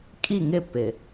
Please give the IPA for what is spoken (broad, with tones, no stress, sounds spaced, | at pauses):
kʼ i˦˨ ŋ ɪ˦˨ p ɪ˨